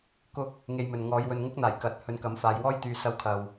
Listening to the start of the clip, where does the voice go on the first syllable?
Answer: high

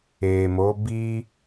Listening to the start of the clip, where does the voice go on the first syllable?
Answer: low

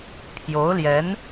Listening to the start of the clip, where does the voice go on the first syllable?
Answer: rising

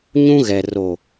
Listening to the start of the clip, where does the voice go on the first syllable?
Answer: high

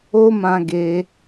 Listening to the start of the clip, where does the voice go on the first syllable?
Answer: high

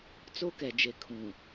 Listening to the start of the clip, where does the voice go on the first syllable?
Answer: high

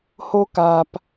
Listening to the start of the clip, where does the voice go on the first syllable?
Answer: high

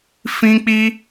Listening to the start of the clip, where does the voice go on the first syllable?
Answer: high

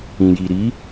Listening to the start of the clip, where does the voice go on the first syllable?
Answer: low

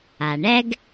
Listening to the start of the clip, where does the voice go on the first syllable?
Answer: low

